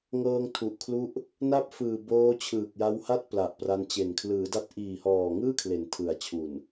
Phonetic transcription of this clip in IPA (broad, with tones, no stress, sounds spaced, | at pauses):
ŋ ɤː˧ ŋ tʰ u˨˩ ʔ kʰ l u˦˥ ʔ | n a˥˩ p̚ f ɯː˨˩ b oː˦˥ t͡ɕʰ ɯː˨˩ k̚ j a˦˥ w h a˥˩ t̚ p l a˨˩ ʔ p r a˧ n t͡ɕ e˨˩ n kʰ l ɯː˩˦ d a˦˥ t̚ ʔ iː˨˩ h ɔː˨˩ ŋ ɯː˥˩ kʰ l e˨˩ n tʰ ɯ˩˦ a̯ t͡ɕʰ u˨˩ n